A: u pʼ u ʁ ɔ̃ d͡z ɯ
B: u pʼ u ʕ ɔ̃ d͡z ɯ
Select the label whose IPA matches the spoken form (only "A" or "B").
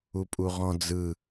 A